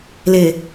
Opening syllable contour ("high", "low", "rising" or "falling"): low